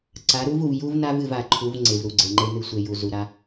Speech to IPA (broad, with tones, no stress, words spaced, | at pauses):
ǀa˨˦ɾu˦vu˨v ju˦vna˦v ɨ˦˨va˨ǃʰu˨˦v ŋ͡ǀe˨vɾu˨ɡ͡ǀe˨ŋ͡ǃe˦ nɨ˨sʷe˨ ju˨ zu˨ɾa˦